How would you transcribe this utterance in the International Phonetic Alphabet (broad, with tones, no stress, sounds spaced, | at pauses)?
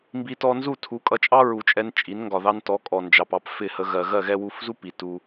m b i˧ t ɔ˧ n z u˦˨ tʰ u˨˦ kʼ ʌ˧ t͡ʃʼ ɑ˦ ɹ u˨ t͡ʃʼ ɛ˧ n t͡ʃʼ i˨˦ n ŋ ɡ ɒ˨ ð ɑ˧ n t ɔ˨˦ kʼ ɔ˨ n d͡ʒ ɑ˨ p ɑ˧ p f ɪ˦˨ h ə˧ ɣ ɜ˨ ɣ ɜ˦˨ ɣ ɛ˧ w u˨˦ f z u˦ p i˨ t u˧